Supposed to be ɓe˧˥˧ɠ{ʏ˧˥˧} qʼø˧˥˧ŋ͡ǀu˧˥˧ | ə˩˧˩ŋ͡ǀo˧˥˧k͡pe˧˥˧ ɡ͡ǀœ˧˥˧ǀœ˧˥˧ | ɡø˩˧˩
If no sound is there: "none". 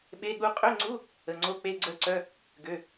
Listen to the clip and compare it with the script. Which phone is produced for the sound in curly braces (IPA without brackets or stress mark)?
u˧˥˧